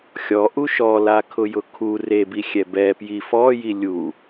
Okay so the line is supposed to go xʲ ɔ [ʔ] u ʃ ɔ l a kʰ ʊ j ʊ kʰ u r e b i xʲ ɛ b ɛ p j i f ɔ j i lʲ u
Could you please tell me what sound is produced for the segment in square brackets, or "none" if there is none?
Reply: ʔ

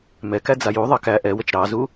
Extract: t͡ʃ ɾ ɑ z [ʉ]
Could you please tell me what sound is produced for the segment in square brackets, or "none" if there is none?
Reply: u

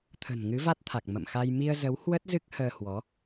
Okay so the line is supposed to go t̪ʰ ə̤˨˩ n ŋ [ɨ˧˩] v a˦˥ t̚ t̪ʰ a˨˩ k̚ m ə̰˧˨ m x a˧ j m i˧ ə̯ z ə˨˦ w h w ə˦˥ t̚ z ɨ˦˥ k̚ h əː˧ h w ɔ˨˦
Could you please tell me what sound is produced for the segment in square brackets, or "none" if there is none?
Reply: ɨ˨˦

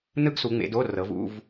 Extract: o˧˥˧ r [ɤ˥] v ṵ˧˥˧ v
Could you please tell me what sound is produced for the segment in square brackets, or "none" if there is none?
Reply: ɤ˨˦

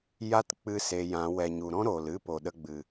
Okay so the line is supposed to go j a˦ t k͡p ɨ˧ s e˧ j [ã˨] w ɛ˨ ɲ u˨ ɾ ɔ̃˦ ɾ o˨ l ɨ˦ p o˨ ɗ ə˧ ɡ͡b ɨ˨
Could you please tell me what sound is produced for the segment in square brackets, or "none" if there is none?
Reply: ã˨˦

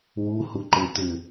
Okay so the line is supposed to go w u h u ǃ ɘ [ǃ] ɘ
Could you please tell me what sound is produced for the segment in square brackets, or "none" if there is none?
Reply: t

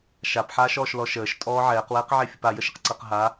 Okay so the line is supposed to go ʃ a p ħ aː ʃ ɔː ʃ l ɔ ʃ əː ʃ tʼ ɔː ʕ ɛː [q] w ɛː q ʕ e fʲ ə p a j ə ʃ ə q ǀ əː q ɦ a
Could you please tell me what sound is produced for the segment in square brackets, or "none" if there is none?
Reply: q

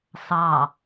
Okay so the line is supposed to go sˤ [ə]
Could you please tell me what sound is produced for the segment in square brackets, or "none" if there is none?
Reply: ɑ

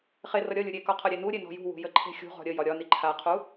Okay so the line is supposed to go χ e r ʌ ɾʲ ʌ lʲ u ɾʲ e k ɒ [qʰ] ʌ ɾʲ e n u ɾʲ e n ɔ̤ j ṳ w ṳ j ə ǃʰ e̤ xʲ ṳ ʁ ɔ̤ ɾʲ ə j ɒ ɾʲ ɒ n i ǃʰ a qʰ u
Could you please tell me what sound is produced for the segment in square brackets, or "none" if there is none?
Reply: qʰ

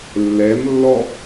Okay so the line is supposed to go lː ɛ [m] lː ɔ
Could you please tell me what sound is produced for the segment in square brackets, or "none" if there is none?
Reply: m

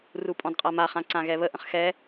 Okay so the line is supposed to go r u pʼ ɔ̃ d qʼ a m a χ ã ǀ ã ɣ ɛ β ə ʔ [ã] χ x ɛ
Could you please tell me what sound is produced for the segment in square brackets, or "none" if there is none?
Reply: ə̃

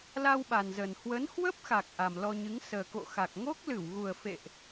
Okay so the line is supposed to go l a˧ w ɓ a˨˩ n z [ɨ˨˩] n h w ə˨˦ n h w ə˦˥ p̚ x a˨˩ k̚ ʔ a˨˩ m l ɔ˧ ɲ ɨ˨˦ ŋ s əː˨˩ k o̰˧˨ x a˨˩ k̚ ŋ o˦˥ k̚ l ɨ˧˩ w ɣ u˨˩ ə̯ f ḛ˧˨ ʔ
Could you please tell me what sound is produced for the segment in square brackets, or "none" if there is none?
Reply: ə˨˩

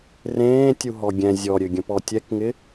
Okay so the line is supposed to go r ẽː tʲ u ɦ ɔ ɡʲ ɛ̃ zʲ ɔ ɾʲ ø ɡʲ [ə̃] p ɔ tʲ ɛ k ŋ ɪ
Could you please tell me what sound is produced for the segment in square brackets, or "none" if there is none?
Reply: ə̃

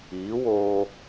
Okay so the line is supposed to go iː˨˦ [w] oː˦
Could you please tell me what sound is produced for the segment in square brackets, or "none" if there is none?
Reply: w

